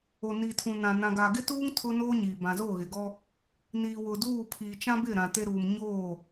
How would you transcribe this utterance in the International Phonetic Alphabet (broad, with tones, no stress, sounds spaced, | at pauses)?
o˨ n iː˨ tʰ ũ˨ n ã˨ n ã˨ ɡ a˨ ɡ ɪ˦ t uː˦ ŋ tʰ ʊ˦ n oː˦ ɲ iː˨ b ã˨ z o˦˨ ɣ ɪ˨ ɡ ɔ˦ | n iː˨ w ʊ˨ d uː˦˨ pʰ iː˨ t͡ʃ ã˦ b ɪ˦˨ ɾ ã˨ t e˦ ɾ uː˨ m ɲ oː˦˨